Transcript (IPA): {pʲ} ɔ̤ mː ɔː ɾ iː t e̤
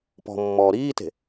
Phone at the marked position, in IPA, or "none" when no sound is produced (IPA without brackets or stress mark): p